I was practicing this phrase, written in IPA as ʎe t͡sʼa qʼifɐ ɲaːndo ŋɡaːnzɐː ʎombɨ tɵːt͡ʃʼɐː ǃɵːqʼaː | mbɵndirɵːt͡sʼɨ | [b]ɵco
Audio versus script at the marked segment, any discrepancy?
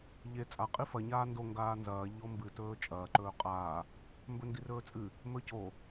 yes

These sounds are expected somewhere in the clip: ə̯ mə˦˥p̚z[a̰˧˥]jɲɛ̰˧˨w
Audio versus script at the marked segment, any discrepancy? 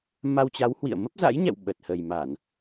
no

